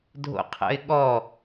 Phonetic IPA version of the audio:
dʱ o̰ qʰ ə̰ ɪ̯ ɠ ɔ

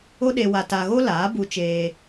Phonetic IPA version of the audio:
o˦ ɗ e˧ w a˧ t a˧ ɣ o˦ l aː˨˦ b u˧ t͡ʃ eː˧

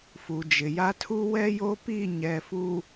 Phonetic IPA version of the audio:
f u˨ d͡ʒ ɪ˨ j a˦ tʰ u˦ w ɛ˦ j o˦ p i˦˨ ɲ ɛ˨ f u˨

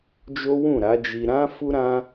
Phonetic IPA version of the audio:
d͡ʒ o˦ w ũ˦˨ ɾ a˨˦ d͡ʒ i˧ ɾ ã˦ f u˦ ɾ ã˦

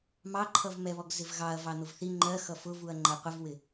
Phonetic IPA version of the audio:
m ɑ ǃʰ ʌ v m ɛ β ɔ ɡ z ɪ v ɣ ɑ ɐ̯ v ɑ n̪ ʊ v θ i ŋ͡ǃ ɜ x ʌ f ʊ v u ɐ̯ ŋ͡ǃ ɜ qʷ ə v w ɪ

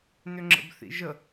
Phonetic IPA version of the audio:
n ʏ ŋ͡ǁ ə̰ b θ ḭ ʒ ə

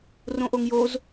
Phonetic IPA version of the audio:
r õ ʔ o ŋ j o z

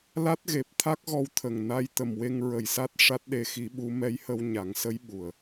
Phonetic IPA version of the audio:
l a˦˥ t̚ ɣ e˨˩ p̚ t̪ʰ a˦˥ k̚ ɣ ɔ˧ w t̪ʰ ə˨˩ ŋ n a˧ j t̪ ə˨˩ m w e˧ ŋ ɹ ə˨˩ j s a˦˥ t̚ ʂ a˦˥ t̚ ɗ e˧ x i˧˥ ɓ u˧˥ m ɛ˧˥ j h ə˧ w ɲ a˨˩˦ ŋ s ə˧˥ j ɓ u˨˩ ə̯

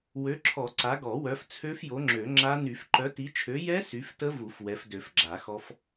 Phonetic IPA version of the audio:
w ø˨˦ ǁʰ ɔ˨˩˦ ǀ a˨˦ ɡ ɔ˨˩˦ w œ˨˦ f t͡sʰ ø˦˥ f j o˨˦ ŋ͡ǁ ø˨˩˦ ŋ͡ǁ a˦˥ n y˨˩˦ f ǃ œ˨˦ t i˨˦ t͡ʃʰ ø˨˦ j ɛ˦˥ s y˨˦ f t ə˦˥ v u˨˩˦ f w ɛ˨˦ f d ø˨˩˦ f ɡ͡ǁ a˨˩˦ x ɔ˦˥ f

